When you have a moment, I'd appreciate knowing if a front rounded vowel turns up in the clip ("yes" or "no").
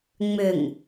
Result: yes